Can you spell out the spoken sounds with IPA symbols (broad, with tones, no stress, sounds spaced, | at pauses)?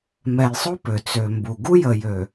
m ɛ˨ j sˤ o˦ p ø˨ t͡s ø˨ m b u˨ ɡ u˦ j ə˨ j ø˨